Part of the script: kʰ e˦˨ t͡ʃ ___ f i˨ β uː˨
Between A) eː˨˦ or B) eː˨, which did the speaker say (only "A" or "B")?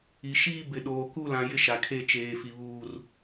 B